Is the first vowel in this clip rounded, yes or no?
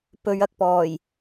yes